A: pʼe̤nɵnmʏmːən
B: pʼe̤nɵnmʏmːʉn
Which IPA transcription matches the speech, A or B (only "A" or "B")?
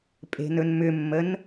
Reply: A